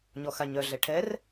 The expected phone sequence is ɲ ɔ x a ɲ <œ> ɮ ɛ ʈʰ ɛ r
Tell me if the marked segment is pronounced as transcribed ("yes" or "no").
yes